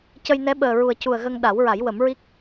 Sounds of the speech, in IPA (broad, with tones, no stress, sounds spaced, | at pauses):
c ə˧ j n ɛ˧˥ ɓ əː˨˩ ɹ u˨˩ ə̯ c u˨˩ ə̯ ɣ ə˧ ŋ ɗ a˨˩˦ w ɹ a˨˩˦ j w ə˨˩˦ m ɹ i˦˥ k̚